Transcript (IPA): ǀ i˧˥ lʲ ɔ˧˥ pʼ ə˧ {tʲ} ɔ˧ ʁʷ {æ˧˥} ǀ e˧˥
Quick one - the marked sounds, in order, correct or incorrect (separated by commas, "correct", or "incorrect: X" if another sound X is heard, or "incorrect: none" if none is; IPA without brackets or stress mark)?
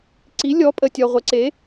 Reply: correct, incorrect: ə˧˥